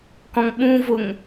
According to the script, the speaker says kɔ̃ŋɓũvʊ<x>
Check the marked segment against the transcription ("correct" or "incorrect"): incorrect